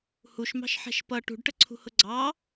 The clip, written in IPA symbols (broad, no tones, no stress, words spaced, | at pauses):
huʃmɑ̤ʃħɛ̤ʃ pʌ ʈṳɖʈəǀʰṳhʊ ɡ͡ǀɑ